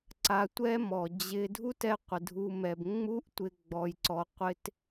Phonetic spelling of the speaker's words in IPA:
ǀa˧tʷɛ˦mɔ˨ d͡ʑɪ˦ dʱu˦tɛ˧qʷɪ˨ dʱu˦mɛ˧b ŋ͡mu˦ʔtʷɪ˧ ɡ͡bɔ˧jǀɔ˧qʷɪ˦t

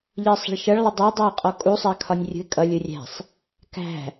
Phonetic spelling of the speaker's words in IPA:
ʎɜsˤə̤ɭʃʌɭ lˠədˤæ dˤɜɪ̯qʼɔkʼu sˤækʰɒnʲrʲṳɪ̯kʼʌlʲ urʲæ̤sˤ | kæ̤

